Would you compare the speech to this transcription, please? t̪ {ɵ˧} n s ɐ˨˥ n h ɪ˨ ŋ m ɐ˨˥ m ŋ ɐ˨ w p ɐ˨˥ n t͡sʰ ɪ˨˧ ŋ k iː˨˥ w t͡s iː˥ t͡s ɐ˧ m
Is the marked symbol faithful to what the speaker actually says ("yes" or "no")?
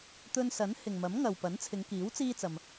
yes